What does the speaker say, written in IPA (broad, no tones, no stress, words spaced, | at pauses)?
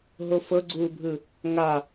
ɦofɤɡ͡ǀuːbʱɯ | ŋa